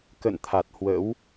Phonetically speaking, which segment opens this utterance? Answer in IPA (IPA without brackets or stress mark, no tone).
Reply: k